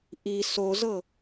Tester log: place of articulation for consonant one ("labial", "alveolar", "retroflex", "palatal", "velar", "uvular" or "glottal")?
glottal